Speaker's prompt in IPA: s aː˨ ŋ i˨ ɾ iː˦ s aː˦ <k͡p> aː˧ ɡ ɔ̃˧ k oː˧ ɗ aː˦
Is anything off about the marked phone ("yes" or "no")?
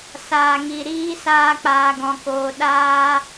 no